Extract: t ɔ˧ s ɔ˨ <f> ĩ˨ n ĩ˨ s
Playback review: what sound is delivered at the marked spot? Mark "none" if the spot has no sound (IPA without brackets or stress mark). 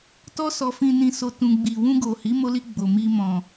f